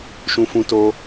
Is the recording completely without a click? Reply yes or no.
yes